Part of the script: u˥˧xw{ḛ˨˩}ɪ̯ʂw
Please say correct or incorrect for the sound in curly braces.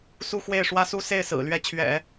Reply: incorrect